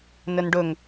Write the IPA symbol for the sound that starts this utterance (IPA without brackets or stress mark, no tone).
n